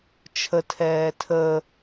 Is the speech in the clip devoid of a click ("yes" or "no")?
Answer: yes